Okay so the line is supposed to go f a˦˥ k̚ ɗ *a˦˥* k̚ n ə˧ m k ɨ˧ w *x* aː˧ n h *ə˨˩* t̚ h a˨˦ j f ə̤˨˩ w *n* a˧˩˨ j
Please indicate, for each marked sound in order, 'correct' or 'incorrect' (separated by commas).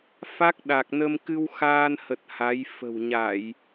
incorrect, correct, correct, incorrect